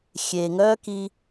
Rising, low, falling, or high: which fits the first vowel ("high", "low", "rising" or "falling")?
low